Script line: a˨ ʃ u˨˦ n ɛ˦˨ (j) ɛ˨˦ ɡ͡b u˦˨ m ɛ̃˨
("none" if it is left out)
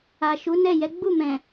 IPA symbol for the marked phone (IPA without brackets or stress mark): j